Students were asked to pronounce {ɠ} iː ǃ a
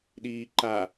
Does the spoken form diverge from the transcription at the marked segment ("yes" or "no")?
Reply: yes